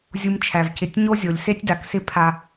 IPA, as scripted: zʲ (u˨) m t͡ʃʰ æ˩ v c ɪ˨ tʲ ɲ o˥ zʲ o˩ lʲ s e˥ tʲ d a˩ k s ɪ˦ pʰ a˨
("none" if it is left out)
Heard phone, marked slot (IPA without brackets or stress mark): u˨